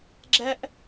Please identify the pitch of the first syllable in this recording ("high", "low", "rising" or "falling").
high